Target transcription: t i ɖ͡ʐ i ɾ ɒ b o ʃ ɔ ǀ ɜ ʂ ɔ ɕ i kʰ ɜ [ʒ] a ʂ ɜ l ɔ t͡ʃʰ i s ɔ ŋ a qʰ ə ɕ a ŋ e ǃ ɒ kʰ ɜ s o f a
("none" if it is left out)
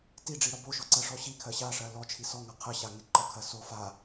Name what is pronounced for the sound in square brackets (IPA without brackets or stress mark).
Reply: ɕ